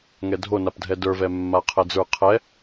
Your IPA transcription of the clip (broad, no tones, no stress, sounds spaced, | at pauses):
ŋ ɛ dʱ o n a p dʱ ɛ d ə˞ v ɛ mː a qʰ ɛ d͡z ə˞ qʰ ɛ